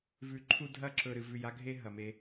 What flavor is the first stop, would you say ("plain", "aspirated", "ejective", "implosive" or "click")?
click